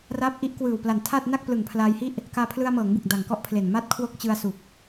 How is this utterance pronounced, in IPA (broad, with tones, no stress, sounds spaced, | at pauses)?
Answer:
r aː˦˥ p̚ ʔ i˦˥ ʔ k w ɯː˨˩ w p l a˨˩ n tʰ a˥˩ t̚ n a˥˩ k̚ p l ɯ˨˩ ŋ pʰ l aː˧ j h i˥˩ ʔ | k aː˧ pʰ l ɯ˧ a̯ m ɤː˩˦ ŋ b ɯ˨˩ k̚ d a˨˩ ŋ k ɔ˥˩ ʔ pʰ l e˨˩ n m a˦˥ t̚ kʰ w o˦˥ k̚ t͡ɕ ɯ˧ a̯ s u˨˩ k̚